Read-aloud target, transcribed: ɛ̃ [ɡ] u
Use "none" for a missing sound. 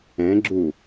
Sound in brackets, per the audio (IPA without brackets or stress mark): ɡ͡ǁ